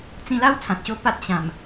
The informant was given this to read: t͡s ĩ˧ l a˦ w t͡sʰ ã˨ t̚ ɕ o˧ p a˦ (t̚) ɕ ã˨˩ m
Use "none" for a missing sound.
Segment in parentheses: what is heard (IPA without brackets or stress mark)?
t̚